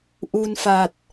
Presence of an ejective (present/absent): absent